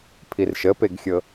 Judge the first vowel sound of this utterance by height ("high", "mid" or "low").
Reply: high